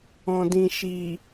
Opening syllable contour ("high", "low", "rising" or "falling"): low